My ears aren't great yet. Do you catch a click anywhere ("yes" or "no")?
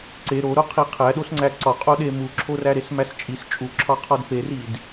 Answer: yes